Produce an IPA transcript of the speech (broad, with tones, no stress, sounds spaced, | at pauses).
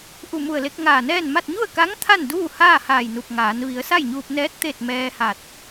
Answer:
ʔ u˧˩ m u˧˩ ə̯ l e˧ k̚ ŋ aː˧˩ n ɛː˥˨ n m a˥˨ t̚ ɲ u˥˨ ə̯ k a˧˥ ŋ t̪ʰ a˥˨ n d uː˥˨ h aː˥˨ h aː˧˩ j n u˧˩ p̚ ŋ aː˩˧ n ʋ i˩˧ ə̯ s a˥˨ j ɲ uː˧ p̚ n ɛː˧˥ t̚ t̪ e˥˨ t̚ m ɛː˧ h a˧˩ t̚